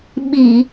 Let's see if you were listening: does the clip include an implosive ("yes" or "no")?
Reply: yes